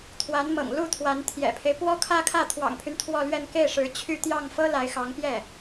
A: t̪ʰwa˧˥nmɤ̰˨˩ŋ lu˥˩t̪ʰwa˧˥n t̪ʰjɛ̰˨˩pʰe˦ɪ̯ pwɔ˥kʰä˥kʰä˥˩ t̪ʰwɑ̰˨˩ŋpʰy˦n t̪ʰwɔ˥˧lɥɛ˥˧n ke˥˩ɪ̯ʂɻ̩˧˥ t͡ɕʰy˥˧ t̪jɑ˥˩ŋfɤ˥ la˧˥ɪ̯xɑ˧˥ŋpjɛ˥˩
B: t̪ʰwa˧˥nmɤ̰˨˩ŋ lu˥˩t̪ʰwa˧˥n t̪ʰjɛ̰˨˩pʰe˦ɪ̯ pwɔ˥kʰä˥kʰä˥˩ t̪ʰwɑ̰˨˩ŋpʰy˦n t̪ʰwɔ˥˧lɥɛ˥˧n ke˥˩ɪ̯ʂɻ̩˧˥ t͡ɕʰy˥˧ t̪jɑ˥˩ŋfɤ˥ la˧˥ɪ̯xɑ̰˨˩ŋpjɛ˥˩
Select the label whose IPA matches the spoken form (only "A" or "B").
A